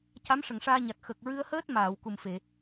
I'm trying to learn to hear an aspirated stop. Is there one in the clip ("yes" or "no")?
no